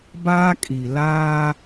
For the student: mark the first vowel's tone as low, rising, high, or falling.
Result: high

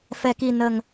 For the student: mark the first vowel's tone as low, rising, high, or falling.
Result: low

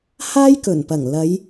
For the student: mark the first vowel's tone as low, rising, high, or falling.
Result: high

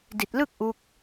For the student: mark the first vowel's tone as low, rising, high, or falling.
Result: low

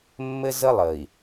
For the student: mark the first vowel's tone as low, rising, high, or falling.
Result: high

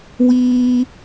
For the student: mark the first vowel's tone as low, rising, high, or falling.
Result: high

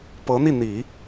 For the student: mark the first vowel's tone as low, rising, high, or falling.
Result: rising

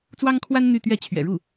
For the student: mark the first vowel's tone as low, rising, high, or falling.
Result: high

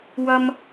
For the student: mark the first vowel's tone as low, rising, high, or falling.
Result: high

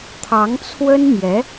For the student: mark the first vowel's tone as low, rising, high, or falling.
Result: rising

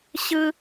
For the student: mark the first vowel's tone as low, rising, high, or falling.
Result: high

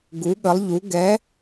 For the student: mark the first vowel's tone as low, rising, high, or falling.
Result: rising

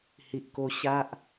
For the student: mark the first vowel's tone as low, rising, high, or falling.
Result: low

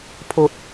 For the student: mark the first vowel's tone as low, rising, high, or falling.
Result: low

